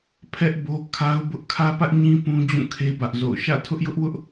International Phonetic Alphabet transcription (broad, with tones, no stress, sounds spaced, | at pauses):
pʰ ɛ˦ ʔ b o˦ kʰ a˦ ʊ̯ b ʊ˦ ʔ kʰ ä˦ p ä˦ ʔ ɲ ĩ˦ p ũ˦ d͡ʑ ũ˦˨ kʰ e˦ b ä˦ ʔ z o̰˦˨ ʊ̯ ʃ ä̰˦˨ tʰ ʊ˦ ʔ j ʊ˦ ʔ w ʊ˦ ʔ